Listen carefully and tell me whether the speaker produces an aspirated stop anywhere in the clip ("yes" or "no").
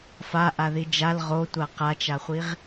no